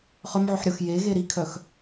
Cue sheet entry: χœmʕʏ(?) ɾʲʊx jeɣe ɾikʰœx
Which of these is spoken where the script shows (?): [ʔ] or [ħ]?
ħ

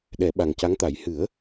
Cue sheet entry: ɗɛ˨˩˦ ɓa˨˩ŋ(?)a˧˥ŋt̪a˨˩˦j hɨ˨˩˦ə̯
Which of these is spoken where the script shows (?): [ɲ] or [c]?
c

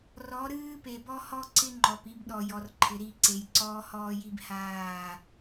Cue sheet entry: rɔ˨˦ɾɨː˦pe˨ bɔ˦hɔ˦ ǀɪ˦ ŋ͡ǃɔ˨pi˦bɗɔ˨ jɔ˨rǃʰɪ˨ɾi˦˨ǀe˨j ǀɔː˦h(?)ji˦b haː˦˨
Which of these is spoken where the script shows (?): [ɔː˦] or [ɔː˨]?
ɔː˦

